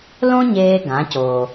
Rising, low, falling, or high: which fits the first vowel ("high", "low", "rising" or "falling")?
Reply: high